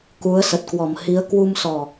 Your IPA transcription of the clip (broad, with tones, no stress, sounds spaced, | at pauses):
k u˨˦ ə̯ s ə˨˩ t̚ k w ɔ˨˩ m h i˨˦ ə̯ k w u˧ m s ɔ˨˩